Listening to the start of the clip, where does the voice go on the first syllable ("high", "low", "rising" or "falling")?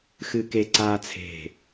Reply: high